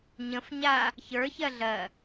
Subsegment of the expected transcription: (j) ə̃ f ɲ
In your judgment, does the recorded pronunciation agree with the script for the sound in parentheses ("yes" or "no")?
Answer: no